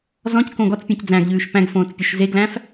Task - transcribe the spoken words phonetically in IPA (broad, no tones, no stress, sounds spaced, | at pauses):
z ɔ̃ c k õ ɡ ɔ t͡s pʲ ẽ c d͡z æ̃ ɡ ʎ ʉː ʃ p æ̃ ɡ f õː t͡s pʲ o ʃ z e ɡ l æ̃ f